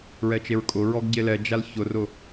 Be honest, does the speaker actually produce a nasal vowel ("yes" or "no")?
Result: no